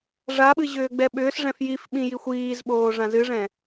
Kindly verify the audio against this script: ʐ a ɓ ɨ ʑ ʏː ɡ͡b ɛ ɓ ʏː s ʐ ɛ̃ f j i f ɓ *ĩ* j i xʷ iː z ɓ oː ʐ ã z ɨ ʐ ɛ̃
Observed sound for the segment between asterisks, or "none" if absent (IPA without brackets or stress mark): ĩ